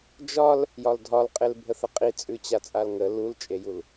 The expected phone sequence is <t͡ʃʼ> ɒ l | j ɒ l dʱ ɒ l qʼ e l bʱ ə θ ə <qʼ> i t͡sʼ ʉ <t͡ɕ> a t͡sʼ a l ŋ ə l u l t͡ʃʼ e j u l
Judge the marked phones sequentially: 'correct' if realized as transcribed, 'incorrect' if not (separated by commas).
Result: incorrect, correct, correct